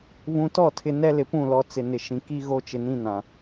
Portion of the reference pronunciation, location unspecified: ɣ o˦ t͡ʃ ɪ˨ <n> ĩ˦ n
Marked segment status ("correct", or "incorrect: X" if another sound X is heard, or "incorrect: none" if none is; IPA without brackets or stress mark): correct